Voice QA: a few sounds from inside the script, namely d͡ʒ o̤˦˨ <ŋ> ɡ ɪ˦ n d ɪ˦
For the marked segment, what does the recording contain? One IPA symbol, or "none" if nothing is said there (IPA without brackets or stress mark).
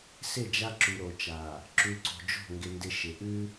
ŋ